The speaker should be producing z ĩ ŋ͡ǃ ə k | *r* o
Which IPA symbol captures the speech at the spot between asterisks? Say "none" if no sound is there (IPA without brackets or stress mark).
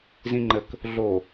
ɮ